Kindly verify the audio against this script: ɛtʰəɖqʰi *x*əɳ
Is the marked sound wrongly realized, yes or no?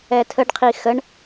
no